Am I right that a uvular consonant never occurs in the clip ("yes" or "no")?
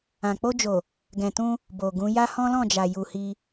yes